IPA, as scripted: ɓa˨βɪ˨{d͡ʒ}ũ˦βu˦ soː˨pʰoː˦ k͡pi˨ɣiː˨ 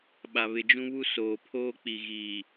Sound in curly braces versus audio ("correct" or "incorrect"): correct